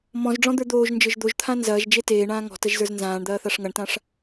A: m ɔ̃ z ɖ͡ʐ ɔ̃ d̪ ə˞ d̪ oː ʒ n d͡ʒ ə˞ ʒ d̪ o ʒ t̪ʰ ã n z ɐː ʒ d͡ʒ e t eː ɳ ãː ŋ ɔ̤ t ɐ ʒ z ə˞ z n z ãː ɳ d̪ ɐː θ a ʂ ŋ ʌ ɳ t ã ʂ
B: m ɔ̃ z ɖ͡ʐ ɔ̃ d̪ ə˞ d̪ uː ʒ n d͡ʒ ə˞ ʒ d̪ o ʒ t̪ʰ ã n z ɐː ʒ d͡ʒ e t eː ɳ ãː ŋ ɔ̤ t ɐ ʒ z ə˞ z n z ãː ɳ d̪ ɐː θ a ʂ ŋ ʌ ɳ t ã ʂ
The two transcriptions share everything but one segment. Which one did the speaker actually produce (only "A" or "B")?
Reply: A